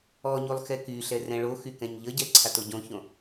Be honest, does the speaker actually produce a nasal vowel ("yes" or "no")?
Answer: yes